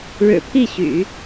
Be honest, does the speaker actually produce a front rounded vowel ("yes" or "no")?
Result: yes